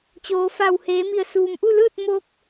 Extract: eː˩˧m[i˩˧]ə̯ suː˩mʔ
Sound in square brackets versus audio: incorrect: i˧˩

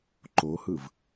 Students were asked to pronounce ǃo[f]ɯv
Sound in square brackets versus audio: incorrect: h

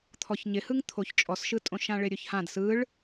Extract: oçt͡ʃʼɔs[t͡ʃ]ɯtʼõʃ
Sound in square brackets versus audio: incorrect: ʃ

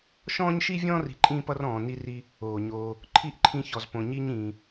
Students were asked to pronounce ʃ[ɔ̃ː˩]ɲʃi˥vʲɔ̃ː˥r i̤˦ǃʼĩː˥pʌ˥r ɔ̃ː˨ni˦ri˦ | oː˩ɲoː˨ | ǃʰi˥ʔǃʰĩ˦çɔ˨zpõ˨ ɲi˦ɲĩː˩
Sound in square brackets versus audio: incorrect: ɔ̃ː˥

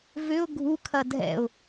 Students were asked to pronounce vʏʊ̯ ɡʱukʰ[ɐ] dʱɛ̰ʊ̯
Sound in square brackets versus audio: correct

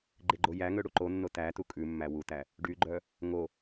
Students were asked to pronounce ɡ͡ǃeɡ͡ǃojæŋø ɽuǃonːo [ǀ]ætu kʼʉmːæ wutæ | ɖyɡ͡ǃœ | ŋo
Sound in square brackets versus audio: incorrect: t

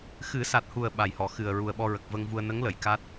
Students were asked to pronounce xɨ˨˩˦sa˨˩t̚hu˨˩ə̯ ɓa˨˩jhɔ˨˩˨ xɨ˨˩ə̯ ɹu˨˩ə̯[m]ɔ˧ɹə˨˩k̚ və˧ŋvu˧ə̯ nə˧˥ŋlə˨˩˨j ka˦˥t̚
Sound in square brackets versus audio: incorrect: ɓ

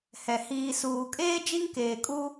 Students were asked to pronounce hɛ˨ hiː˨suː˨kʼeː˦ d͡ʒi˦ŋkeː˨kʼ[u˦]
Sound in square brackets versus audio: correct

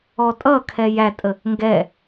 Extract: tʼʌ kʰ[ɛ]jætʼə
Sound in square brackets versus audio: correct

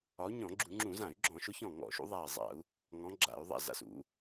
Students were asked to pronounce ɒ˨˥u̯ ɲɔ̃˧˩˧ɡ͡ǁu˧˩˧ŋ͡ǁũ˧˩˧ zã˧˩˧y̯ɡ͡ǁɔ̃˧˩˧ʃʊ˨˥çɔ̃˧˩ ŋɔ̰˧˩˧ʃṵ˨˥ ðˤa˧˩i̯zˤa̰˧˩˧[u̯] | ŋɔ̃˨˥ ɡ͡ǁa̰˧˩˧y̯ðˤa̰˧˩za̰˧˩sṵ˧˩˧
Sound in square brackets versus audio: correct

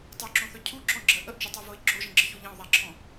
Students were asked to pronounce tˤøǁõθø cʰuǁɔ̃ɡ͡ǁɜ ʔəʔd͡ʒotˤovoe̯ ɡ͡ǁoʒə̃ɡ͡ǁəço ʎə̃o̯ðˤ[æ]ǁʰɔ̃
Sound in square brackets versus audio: correct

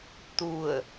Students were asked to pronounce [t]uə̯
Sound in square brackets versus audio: correct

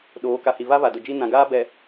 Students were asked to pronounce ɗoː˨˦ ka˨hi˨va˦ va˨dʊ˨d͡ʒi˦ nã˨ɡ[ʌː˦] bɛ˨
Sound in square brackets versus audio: incorrect: aː˦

